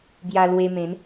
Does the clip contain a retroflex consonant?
no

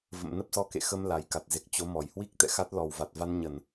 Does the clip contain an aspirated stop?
no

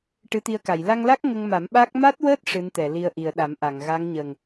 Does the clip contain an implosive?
yes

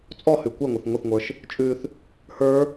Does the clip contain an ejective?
yes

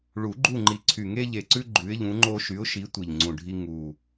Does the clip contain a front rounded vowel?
yes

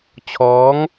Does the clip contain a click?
no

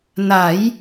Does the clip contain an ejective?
no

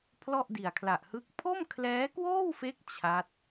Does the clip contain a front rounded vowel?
no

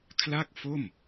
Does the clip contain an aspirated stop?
yes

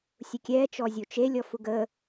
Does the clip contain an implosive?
no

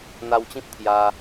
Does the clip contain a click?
no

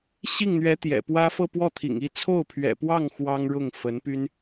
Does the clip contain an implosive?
no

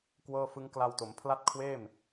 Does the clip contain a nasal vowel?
no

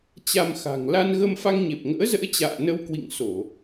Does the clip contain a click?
no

